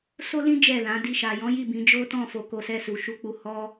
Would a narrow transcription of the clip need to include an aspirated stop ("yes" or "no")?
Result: no